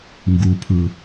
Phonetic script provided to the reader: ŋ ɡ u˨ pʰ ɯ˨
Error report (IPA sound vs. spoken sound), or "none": none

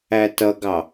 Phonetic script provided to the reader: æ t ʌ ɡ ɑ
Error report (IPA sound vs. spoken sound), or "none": none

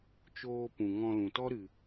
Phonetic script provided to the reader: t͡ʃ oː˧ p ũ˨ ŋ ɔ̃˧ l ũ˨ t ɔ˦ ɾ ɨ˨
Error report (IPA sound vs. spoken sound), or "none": none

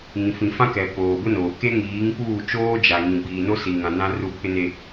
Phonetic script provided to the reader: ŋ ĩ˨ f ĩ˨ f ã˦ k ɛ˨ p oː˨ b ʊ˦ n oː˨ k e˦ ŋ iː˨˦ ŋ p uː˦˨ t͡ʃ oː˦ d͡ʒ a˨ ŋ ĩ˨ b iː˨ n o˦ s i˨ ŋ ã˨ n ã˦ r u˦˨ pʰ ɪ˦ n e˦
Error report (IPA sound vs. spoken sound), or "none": none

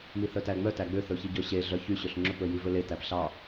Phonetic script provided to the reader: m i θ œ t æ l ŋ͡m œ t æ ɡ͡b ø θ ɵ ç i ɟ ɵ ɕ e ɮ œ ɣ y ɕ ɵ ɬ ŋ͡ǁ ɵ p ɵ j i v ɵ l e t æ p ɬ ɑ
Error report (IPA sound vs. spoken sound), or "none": ɣ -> ç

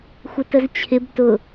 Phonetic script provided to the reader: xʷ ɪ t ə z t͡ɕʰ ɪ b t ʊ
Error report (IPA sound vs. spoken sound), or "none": none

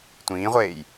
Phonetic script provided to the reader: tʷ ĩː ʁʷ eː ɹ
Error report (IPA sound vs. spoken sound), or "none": ɹ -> j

